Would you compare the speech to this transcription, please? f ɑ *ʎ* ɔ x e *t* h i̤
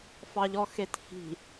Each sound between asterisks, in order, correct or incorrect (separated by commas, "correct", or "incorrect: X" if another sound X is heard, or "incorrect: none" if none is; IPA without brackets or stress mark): correct, correct